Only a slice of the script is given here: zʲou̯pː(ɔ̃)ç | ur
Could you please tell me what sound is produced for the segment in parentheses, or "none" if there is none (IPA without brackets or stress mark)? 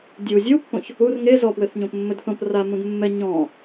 õ